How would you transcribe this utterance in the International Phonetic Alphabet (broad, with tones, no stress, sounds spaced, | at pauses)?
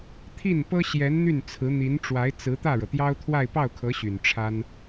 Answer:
t̪ʰ i˥˩ n p ɤ˥ ɕ j ɛ˧˥ n n̪ y˥˩ n t͡sʰ ɹ̩˧˥ n̪ i˧˥ n ʈ͡ʂ w a˧˥ ɪ̯ t͡s ɹ̩˧˥ t̪ ä˥˩ ɻ ɤ˩ t̪ j ɑ˥ ʊ̯ t̪ʰ w a˥˧ ɪ̯ p ɑ˥˩ ʊ̯ kʰ ɤ˧˥ ɕ y˨˩ n ʈ͡ʂʰ a˥ n